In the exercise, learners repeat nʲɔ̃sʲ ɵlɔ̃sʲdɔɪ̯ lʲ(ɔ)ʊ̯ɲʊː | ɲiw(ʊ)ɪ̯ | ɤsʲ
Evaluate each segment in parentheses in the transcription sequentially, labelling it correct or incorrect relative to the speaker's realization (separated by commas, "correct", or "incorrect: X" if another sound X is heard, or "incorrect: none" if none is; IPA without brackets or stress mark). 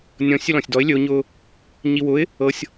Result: incorrect: ɵ, correct